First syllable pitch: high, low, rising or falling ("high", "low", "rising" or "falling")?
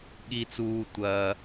low